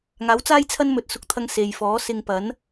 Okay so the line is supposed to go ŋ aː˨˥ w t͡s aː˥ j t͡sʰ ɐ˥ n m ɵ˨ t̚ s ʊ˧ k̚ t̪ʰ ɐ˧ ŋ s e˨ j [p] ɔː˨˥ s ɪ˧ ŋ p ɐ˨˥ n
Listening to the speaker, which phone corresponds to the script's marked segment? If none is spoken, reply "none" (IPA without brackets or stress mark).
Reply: f